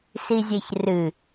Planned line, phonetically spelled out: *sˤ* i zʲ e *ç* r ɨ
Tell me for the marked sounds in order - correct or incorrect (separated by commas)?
incorrect, correct